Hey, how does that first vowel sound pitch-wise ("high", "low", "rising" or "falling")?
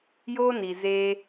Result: high